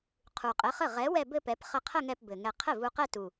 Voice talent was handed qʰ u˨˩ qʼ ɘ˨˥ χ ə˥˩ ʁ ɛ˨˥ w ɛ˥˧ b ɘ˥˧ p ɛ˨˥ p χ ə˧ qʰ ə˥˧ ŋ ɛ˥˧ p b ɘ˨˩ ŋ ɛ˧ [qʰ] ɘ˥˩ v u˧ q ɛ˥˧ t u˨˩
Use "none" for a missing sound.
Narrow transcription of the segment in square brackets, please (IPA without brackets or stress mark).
qʰ